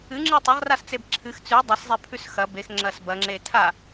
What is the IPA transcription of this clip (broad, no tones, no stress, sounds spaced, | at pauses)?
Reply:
ɨ ŋ͡ǁ ɨ tˤ ɐ ʁ r a s t͡s e b ǁʰ ɨ x t͡s ʉ dˤ a s zˤ e pʰ ʉ s x ɐ b e x ŋ͡ǁ ɐ s b ɐ ŋ͡ǁ e tʰ a